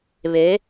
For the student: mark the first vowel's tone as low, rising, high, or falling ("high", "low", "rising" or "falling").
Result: rising